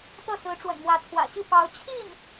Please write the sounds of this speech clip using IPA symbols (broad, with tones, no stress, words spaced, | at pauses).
t̪ɤ˥˩sɹ̩˧˥ ʈ͡ʂwə̰˨˩nmwä˧˥t͡sʰwä̰˨˩ɕi˥˩ pɑ˧˥ʊ̯ t͡ɕʰi˥˩n